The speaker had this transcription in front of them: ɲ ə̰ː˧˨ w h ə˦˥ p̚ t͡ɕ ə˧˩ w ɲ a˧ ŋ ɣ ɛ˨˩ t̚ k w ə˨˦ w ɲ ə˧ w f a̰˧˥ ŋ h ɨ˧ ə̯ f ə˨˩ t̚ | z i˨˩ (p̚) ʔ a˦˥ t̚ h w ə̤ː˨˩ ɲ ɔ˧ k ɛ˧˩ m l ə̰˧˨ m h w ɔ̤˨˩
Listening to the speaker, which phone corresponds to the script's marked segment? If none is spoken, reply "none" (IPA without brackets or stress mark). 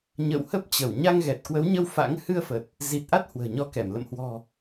t̚